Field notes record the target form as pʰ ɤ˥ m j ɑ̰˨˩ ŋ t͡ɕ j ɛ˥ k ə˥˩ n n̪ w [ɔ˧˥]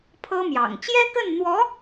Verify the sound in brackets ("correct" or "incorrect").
correct